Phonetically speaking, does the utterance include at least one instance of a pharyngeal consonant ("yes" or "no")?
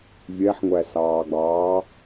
yes